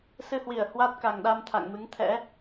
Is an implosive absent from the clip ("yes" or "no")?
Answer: no